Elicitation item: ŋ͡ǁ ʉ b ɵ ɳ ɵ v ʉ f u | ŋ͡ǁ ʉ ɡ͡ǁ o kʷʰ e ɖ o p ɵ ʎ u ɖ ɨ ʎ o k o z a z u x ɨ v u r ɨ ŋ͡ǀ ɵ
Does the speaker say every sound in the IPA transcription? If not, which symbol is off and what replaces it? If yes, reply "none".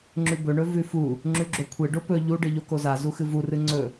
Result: none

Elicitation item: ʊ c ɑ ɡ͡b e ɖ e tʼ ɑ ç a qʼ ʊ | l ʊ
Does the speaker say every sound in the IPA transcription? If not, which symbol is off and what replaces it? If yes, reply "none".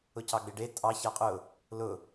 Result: none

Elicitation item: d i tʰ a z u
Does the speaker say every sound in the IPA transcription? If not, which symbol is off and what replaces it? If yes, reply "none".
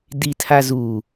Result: none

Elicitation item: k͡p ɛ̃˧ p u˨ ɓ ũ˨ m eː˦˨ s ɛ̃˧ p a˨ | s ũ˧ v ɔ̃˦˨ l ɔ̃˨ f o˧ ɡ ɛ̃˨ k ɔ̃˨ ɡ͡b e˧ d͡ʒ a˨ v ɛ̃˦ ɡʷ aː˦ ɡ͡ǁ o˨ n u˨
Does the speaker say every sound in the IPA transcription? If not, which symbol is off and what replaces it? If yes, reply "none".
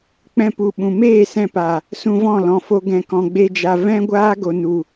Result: ɡ͡ǁ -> ɡ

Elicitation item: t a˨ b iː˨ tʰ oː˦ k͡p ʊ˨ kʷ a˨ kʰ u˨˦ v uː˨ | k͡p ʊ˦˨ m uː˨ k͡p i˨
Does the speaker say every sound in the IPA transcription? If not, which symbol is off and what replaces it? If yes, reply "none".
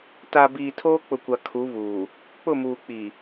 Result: none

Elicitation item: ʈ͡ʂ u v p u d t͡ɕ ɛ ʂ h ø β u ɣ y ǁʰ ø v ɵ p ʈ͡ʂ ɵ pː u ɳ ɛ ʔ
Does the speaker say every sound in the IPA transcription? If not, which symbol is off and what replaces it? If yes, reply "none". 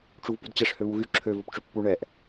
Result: none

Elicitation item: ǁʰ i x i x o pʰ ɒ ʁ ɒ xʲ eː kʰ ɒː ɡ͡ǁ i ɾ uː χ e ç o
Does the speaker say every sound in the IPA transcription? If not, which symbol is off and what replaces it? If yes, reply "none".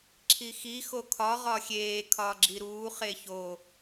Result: pʰ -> kʰ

